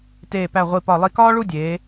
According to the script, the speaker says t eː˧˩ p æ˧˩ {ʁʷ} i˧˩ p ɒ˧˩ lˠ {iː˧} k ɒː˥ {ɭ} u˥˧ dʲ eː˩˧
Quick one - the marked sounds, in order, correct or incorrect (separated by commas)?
correct, incorrect, correct